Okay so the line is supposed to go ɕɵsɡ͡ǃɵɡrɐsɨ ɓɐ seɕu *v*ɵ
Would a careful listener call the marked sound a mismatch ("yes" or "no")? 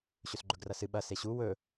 yes